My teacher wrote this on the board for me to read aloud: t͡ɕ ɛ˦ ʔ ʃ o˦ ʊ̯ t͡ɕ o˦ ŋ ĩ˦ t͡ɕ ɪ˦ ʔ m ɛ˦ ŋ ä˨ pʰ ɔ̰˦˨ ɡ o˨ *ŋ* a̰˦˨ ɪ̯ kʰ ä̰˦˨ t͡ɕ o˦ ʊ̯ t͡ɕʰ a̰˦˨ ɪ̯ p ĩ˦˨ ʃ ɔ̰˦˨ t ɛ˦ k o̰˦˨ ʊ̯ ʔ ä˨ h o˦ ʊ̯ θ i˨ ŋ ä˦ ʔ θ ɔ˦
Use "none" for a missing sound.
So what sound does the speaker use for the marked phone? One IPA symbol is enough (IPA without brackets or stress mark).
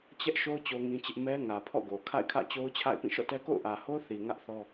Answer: kʰ